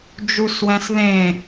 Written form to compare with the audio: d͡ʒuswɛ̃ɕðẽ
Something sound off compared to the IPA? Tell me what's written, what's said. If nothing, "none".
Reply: ɕ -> s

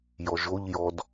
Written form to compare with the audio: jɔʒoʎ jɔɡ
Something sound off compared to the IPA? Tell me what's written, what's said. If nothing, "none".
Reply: ɡ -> d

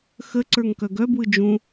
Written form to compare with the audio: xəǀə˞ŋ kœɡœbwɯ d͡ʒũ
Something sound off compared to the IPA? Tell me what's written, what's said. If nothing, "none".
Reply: none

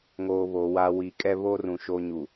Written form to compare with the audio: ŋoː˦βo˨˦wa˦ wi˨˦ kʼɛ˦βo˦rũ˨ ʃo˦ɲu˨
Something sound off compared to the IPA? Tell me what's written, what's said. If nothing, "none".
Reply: none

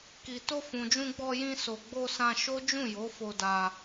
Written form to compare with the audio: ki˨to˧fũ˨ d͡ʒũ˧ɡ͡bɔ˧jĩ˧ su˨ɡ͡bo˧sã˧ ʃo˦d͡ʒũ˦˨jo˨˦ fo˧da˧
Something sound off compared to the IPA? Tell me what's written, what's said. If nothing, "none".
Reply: u˨ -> o˨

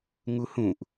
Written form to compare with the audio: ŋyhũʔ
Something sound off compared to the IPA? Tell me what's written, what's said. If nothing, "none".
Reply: y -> u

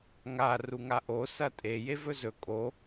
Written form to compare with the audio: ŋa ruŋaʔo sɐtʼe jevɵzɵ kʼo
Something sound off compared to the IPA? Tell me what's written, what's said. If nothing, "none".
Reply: none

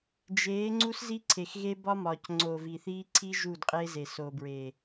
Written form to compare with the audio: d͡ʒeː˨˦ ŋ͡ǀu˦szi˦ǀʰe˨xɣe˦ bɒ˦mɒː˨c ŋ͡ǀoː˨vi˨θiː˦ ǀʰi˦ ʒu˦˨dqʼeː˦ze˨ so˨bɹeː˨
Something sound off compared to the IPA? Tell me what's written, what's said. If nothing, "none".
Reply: none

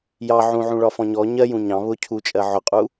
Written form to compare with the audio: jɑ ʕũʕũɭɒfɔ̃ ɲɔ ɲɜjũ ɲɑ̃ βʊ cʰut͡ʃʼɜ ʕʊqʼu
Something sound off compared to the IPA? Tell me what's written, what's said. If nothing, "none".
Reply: none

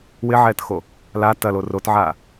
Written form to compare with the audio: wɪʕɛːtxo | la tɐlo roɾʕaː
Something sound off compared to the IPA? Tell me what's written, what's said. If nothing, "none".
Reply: ɾ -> t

